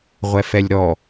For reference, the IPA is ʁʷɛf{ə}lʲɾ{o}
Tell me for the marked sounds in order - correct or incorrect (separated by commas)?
incorrect, incorrect